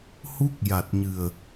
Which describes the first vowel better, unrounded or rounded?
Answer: rounded